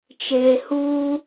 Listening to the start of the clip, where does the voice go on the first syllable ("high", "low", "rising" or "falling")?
low